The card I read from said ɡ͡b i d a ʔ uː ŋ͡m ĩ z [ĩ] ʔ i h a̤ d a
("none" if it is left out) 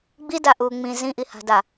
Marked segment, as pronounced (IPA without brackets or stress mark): ĩ